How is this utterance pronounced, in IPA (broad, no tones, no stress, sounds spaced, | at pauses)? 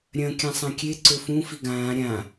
ɾʲ ɐ̃ kʲ ã sˤ ã kʲ e ǀ ɵ f ũ f i ɡ ãː ɾʲ ã